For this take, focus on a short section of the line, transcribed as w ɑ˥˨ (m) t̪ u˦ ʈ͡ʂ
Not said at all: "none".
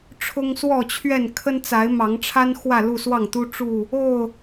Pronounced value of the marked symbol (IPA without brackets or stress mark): ŋ